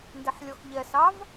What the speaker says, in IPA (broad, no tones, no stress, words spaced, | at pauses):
ndeħlʲɔxʎɛsɑv